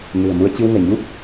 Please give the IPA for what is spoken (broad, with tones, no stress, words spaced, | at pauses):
nɨ̤˨˩ə̯mu˧ə̯ t͡ɕɨ˧wŋɛ̤˨˩ɲu˦˥p̚